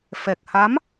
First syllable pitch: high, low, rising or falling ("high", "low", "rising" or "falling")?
low